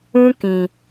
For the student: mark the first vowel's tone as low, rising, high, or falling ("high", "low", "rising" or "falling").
high